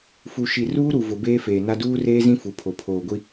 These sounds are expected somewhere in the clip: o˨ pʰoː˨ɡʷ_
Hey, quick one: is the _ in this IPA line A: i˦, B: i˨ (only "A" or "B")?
A